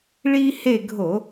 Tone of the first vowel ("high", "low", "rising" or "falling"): high